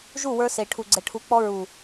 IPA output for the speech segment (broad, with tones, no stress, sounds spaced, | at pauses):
ʒ u˦˨ w ə˞˧ s e˨ ʈʰ u˨ ɡ͡ǀ ɛ˨ ʈʰ u˨˦ k͡p ɔ˧ ɹ u˨